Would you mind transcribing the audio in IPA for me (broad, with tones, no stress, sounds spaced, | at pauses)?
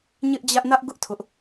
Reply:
ɲ ɪ˦ ʔ d͡ʑ ä˦ ʔ n ä˦ ʔ ɡ ʊ˦ ʔ tʰ ʊ˦ ʔ